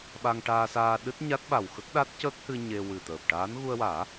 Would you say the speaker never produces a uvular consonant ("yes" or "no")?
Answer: yes